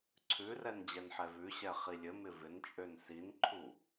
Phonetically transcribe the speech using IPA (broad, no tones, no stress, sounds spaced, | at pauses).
ǀʰ ʉ r ɛ n d͡ʑ ɛ n ħ ɛ v ʉ ɕ ɛ χ i lʲ ɘ m ɪ v ɪ n t͡ʃʼ ø n s i n ǃʰ u